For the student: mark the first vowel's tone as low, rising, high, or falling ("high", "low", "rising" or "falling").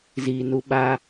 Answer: low